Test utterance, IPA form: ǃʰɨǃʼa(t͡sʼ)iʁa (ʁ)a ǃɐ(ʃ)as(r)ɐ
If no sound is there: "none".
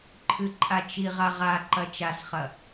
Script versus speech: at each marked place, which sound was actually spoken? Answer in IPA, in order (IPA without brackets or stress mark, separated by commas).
t͡ʃ, ʁ, t͡ʃ, χ